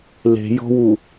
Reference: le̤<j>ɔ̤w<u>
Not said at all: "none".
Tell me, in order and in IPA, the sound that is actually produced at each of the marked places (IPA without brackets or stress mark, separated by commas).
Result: j, u